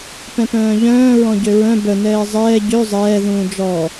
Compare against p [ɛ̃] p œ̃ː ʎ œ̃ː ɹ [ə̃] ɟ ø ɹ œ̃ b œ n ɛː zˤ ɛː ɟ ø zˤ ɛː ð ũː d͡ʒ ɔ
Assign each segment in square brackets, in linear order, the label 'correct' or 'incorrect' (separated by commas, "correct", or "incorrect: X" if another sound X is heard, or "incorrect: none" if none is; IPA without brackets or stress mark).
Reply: correct, incorrect: ɔ̃